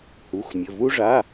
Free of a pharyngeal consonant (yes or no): yes